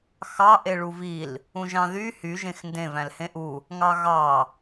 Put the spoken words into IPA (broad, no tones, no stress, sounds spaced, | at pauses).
x ɑ ʔ e ɭ u v i l | ũ ʒ ɑ̃ ð y h y ʒ ẽ x n d ẽ v æ̃ l h ẽ ʔ u | ŋ ɑ ɣ ɑ